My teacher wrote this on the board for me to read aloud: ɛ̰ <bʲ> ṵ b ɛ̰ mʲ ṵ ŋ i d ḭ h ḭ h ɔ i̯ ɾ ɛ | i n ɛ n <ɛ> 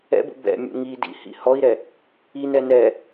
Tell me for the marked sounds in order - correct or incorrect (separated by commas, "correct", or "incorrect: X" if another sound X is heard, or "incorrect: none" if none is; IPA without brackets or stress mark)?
incorrect: b, correct